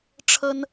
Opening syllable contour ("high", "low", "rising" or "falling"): high